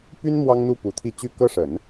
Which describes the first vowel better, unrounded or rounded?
rounded